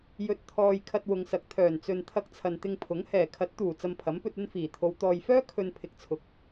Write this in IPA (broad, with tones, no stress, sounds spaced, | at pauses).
j ɵ˧ t̚ t̪ʰ ɔː˧ j kʰ ɐ˧ t̚ w ʊ˨ ŋ s ɐ˨˥ k̚ t̪ʰ œː˨˩ n t͡s ɵ˨ n t̪ʰ ɐ˧ k̚ t͡sʰ ɐ˨ n t̪ ɪ˧ ŋ pʰ ʊ˨˥ ŋ h ɛː˨˩ kʰ ɐ˨˥ t̚ t̪ uː˨˩ t͡s ɐ˧ m pʰ ɐ˨˥ m p ɵ˧ t̚ ɵ˥ n f iː˨˩ t̪ʰ o˨˧ w t̪ ɔː˨ j f œː˥ kʰ ɵ˧ n pʰ ɪ˨ k̚ t͡sʰ ʊ˨˥ k̚